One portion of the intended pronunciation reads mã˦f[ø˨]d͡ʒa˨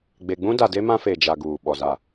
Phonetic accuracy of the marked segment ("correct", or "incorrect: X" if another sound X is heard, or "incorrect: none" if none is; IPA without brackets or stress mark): incorrect: e˨